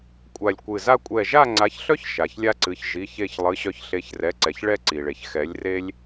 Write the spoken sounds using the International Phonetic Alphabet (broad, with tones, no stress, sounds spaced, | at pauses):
kʷʼ a˧˩ lʲ kʷ ɨ˧˩ z a˦ kʷʼ ɛ˧˩ ʒ a˥˨ ŋ͡ǀ a˩˥ ç ɬ œ˦ ç ʃ a˩ ç lʲ a˦ ǀ ɨ˩˧˩ ç ʒ i˩˧˩ ç e˧˩ ç lˠ ɨ˩˧˩ ɕ œ˧˩ ç ɬ e˩˥ ç r ɛ˩˧˩ ǀ ɛ˩ ç ɭ ɛ˥˨ ǀ i˩ ɭ e˩ ç x ɛ˩˥ lʲ r e˦ lʲ